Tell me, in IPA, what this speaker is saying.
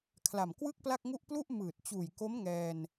kʰ l a˨˩ m k w ɯ˥˩ k̚ p l a˥˩ k̚ ŋ u˥˩ ʔ p l u˥˩ ʔ m ɯː˨˩ t̚ t͡ɕ uː˨˩ j k o˦˥ m ŋ ɛː˧ n

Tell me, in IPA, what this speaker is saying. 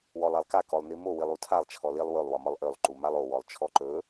w ɔ lˠ a lˠ k a k ɔ lˠ n i m o w i lˠ u tʰ a lˠ t͡ʃʰ ɔ l i lˠ w ɵ lˠ w ɒ m ɒ lˠ ʔ ø lˠ ǃ u m a lˠ o w ɔ lˠ t͡ʃʰ ɔ ǃ ɵ

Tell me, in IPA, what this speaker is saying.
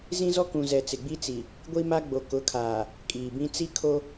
z ĩ˦ z ɔ˦ k ũ˨ z ɛ˨ t͡s ɪ˨ ɡ͡b i˦ t͡s i˨ | ɡʷ i˦ m a˦ ɡ͡b o˨ k ʊ˨˦ kʰ aː˨ | kʼ iː˨ b ĩ˦ t͡s i˦ kʰ o˦

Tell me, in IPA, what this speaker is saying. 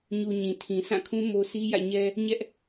ɲ u˨ ɲ ĩ˨ tʰ ĩ˨ s ã˦˨ kʰ ũ˦ m o˦ sʰ i˦ j ä̰˦˨ ɲ ɛ˦ | ɲ ɛ˦ ʔ

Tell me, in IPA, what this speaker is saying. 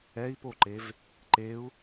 ɛ i̯ p o ǃ e v | ǃ e u̯

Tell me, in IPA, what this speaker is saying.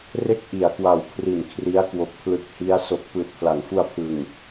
r e˥˩ k̚ ʔ i˩˦ a̯ k w a˨˩ w kʰ r i˨˩ n kʰ r i˦˥ a̯ k w o˨˩ k̚ pʰ l ɯ˦˥ k̚ h i˦˥ a̯ s o˨˩ k̚ p ɯː˨˩ t̚ pʰ l a˩˦ ŋ f u˧ a̯ pʰ ɯ˨˩ ŋ

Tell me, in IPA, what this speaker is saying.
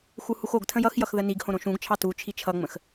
x u h u x o ɡ tʰ ə̃ j ʌ x j ʌ x ð ə n i ɡ h õ ɾ õ ʃ ũ ɡ t͡ʃʰ ɑ t u t͡ʃʰ i t͡ʃʰ ʌ ŋ͡m ə̃ x

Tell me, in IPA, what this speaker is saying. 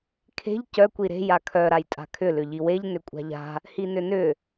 kʰ e̤ ʎ c œ kʷ i ɾ e̤ j a kʰ œ ɾ a j tʼ a̤ kʰ ʏ l ʏ ʎ i w e ʎ n ʏ kʷʼ a̤ ʎ a̤ | h i n ʏ n ʏ

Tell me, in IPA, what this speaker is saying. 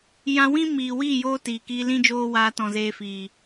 j ã˧ w ĩ˦ m iː˨ w iː˦˨ j oː˧ t iː˨ k iː˧ l ĩ˦ d͡ʒ oː˦ w aː˧ t ɔ̃˨ z eː˧ f iː˨

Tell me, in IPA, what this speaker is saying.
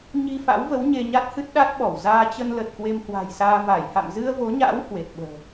ɲ i˧ f a̰˧˥ w v ə˨˦ w ɲ e˧ ɲ a˦˥ t̚ h ɨ˦˥ t̚ ɗ a˦˥ t̚ ɓ ɔ˧˩ w z aː˧ t͡ɕ ə˧ n l ə˨˩ t̚ k w e˧ m h w a̤˨˩ j s aː˧ v a˧˩ j h a̰˧˨ m z ɨ˧ ə̯ v o˨˦ ɲ a̰ː˧˥ w h w e˨˩ t̚ ɓ ə̤ː˨˩

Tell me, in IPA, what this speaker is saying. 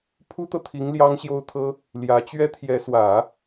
pʰ u˥ t̪ ɤ˨ t̪ʰ i˧˥ ŋ l j ɑ˥ ŋ ɕ j o˥ ʊ̯ t̪ʰ ɤ˥ | l j ä˧˥ t͡ɕ ɥ ɛ˥ t̪ʰ j ɛ˧˥ s w ä˨˩˦

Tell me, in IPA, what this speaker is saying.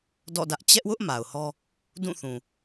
d ɔ̰˦˨ d ä˦ ʔ t͡ɕ ɛ˦ ʔ w ʊ˦ ʔ m a˨ ʊ̯ h ɔ˦ | d ũ˦˨ θ ũ˨

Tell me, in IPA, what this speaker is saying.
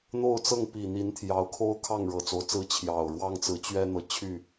n̪ o˥˨ ʊ̯ t͡s ɤ˥˨ ŋ p i˨˩ n̪ i˨˦ n t̪ʰ j ɑ˨˦ ʊ̯ kʰ o˦ ʊ̯ kʰ ɑ˥˨ ŋ ɻ ɤ˨˩ t͡s o˨˦ ʊ̯ t͡s ɹ̩˦ t͡ɕʰ j ɑ˨˩ ʊ̯ ɻ w ɑ˦ ŋ t͡s ɹ̩˨˦ t͡ɕ ɥ ɛ˦ n̪ ɤ˨ t͡ɕʰ y˥˨

